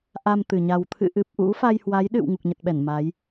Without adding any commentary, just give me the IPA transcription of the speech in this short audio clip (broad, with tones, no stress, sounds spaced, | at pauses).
ʔ a˧ m t̪ ɨ˨˩ ɲ a˨˩ w t̪ʰ ɨ̰˧˨ ʔ ɨ˨˩ p̚ ʔ ṵ˧˥ f a˧ j h w a˨˦ j ɗ ɨ̰˧˨ w ŋ u˨˩ k̚ ɲ ə˨˩ t̚ ɓ ɛ˧˩ n m a˨˦ j